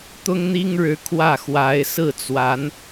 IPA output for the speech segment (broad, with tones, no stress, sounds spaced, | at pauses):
t̪ ʊ˥ ŋ n̪ i˥ ŋ ɻ ɻ̩˧˥ kʰ w ä˥˩ x w a˧˥ ɪ̯ s ɹ̩˥˩ t͡s w a˧˥ n